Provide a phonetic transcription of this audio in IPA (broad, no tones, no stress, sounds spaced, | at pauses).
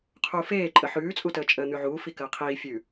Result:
qʰ uː f eː ǃʼ ə ħ ʉː t͡sʼ u t əː t͡ʃʼ əː n̪ ʉ ʕ uː f i k əː qʰ iː fʲ ʉ